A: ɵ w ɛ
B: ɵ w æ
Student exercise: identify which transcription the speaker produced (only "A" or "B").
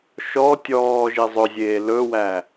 B